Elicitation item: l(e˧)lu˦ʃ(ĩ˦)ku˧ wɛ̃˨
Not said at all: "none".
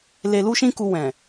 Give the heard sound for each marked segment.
e˧, ĩ˦

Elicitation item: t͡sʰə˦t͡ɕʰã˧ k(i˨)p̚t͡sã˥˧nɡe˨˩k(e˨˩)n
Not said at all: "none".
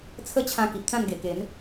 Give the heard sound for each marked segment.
i˨, e˨˦

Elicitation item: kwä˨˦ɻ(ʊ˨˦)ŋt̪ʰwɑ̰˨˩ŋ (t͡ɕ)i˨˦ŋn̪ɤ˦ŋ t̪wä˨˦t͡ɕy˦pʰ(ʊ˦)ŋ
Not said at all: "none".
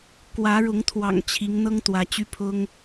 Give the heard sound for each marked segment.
ʊ˨˦, t͡ɕʰ, ʊ˦

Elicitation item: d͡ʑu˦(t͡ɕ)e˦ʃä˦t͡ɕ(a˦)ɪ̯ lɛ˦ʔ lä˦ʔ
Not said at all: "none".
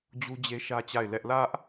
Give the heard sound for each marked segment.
d͡ʑ, a˦˨

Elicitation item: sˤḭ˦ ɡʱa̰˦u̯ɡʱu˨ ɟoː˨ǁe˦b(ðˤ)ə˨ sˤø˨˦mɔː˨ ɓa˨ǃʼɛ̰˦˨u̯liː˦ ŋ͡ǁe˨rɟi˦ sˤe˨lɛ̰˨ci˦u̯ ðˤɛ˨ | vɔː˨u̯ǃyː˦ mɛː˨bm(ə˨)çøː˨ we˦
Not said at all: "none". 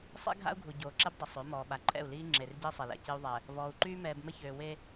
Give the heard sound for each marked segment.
dˤ, ə˦

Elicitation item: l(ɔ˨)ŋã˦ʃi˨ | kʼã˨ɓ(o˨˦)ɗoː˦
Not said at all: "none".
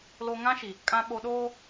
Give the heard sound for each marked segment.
o˨, o˨

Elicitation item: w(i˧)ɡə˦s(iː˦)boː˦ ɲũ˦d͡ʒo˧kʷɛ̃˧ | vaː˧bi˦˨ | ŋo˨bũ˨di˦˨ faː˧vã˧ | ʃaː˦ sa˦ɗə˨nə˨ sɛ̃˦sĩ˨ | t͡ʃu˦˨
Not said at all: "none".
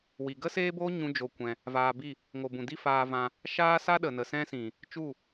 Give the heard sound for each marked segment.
i˨, eː˦

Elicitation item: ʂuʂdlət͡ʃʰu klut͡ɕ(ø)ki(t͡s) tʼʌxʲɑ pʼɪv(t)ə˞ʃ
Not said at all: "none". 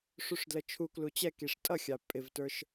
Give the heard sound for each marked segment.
ɛ, ʂ, t

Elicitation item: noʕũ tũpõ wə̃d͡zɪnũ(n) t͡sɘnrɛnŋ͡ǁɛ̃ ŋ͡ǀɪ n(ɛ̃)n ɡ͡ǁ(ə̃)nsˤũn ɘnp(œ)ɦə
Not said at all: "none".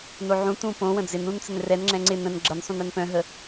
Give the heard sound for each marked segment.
n, ə̃, ə, œ̃

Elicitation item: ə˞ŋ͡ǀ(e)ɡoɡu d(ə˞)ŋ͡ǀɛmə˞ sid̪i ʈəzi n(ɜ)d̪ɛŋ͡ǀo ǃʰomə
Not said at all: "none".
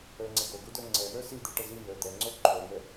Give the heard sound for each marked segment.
ɛ, ə˞, ə˞

